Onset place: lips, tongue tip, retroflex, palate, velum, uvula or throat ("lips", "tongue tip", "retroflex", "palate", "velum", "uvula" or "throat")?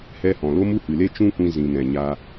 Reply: throat